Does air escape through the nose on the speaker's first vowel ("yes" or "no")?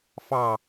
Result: no